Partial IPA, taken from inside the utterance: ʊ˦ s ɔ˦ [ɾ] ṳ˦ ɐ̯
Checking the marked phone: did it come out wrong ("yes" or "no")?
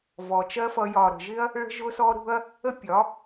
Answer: no